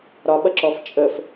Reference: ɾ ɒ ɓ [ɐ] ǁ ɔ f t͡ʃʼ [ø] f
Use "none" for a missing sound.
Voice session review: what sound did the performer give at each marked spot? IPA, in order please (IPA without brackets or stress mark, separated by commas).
ɐ, ə